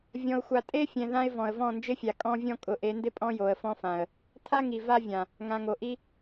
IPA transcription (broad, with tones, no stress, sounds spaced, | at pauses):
vʲ ɔ̃˨ ʊ̯ xʷ a˨ tʼ e˦ fʲ ɛ̃˨ ð ã˦ ɪ̯ v ɔ̃˨ ə̯ v ɔ̃˦˨ n d͡ʒ ɪ˦ fʲ a˨ kʼ ɔ̃˦ vʲ ɔ̃˦ kʼ ʊ˨˦ ʔ e˨˦ n d ɪ˦ pʼ ɔ̃˦ j o˨ ə̯ f ɔ̃˦ f ã˨ ə̯ | tʰ a˦ ŋ i˨ v a˦ vʲ ã˨ | ŋ ã˨ ŋ o˨ ʔ i˦